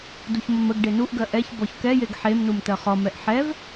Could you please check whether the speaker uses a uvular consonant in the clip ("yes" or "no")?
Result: yes